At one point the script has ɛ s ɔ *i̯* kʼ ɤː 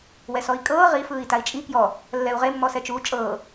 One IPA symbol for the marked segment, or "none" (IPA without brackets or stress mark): i̯